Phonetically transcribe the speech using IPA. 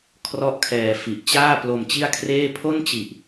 kʰrɔ˥˩ʔkʰɛː˧fi˨˩ʔ t͡ɕaː˥˩ plo˧mt͡ɕi˥˩a̯kʰreː˥˩ pʰo˥˩nt͡ɕi˨˩ʔ

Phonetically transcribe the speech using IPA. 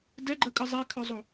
dɛɡ͡ǃɜkʼɨ zˤekʰœzˤo

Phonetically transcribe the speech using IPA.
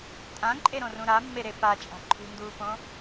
tʼãǃʼeɾõrũ ɾamːeɾe pat͡ʃʼa̤ ǃʰṳnduːpõ

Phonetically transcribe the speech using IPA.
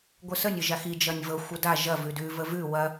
ɡʷəsənʲ əʒaxi d͡ʒɐnʲvɤ xʷəda ʒɐ vʉdʉ vəvʉ wɐ

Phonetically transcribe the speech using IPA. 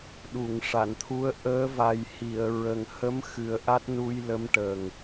ɗu˨˩˨ŋʂa˨˩˨nt̪ʰu˧˥ə̯ ʔəː˧˥va˨˩jhi˨˩˨ə̯ ɹə˨˩ŋ hə˧˥mxɨ˨˩ə̯ ʔa˦˥t̚nu˧j lə˧˥mʈə˨˩ŋ

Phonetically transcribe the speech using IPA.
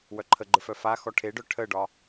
wœǃʰəɡ͡ǃə˞f œfaxɔ ʈʰeɖœ ʈʰəɖɒ

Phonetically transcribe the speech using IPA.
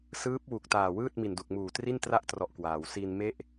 sɯː˦˥p̚wu˨˩k̚taː˨˩wɯː˥˩t̚ mi˨˩ndu˨˩k̚muː˨˩ tri˥˩ntra˥˩ʔ trɔ˦˥ʔkwaː˩˦w si˧nme˥˩ʔ

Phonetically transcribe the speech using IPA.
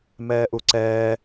mɛːʔuǀɛː

